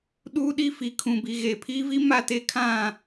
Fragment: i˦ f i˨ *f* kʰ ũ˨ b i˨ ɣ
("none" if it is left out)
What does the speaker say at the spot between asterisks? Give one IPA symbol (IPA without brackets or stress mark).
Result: none